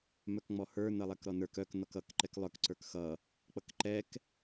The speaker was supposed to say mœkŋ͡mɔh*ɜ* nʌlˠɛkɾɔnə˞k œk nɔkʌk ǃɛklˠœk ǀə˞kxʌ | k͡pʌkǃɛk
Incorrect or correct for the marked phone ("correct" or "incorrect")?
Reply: incorrect